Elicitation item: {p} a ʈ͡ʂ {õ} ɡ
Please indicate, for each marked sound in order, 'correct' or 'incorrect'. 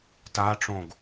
incorrect: t, correct

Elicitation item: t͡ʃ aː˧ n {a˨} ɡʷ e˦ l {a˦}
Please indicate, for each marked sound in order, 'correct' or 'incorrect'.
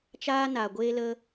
correct, incorrect: ə˦

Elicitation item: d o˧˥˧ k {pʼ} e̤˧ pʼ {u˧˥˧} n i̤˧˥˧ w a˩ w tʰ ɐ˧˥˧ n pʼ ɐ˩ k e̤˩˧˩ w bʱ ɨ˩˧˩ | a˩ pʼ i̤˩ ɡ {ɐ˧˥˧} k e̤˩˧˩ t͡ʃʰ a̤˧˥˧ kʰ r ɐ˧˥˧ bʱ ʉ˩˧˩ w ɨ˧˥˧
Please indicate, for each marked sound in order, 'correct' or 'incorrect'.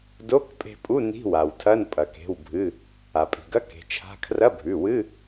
correct, correct, correct

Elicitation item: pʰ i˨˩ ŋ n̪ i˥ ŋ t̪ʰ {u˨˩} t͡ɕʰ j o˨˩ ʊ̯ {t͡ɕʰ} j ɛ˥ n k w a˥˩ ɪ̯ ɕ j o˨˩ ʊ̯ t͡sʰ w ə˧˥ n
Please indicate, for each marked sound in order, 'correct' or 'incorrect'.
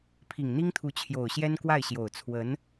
incorrect: u˧˥, incorrect: ɕ

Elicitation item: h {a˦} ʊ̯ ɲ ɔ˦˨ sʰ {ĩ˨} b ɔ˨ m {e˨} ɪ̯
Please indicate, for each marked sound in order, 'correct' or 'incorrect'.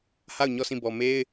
incorrect: a˦˨, incorrect: ĩ˦˨, incorrect: e˦

